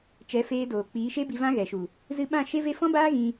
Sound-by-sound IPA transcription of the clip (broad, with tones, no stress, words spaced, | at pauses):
t͡ʃɛ˨˦feː˧doː˨ k͡piː˨˦ʃe˦bi˧ vã˦ɣɛ˨ʃu˨ | zɨ˧ɓã˦˨ ʃe˦ve˦ fɔ̃˦baː˦ ɣĩ˧